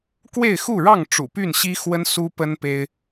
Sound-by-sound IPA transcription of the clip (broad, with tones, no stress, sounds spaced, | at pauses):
k w e˥˨ ɪ̯ x u˥˨ ɻ ɑ˥˨ ŋ ʈ͡ʂ ṵ˨˩ p y˥˨ n ɕ i˦ x w ə˦ n s u˦ p ə˦ n p e˦ ɪ̯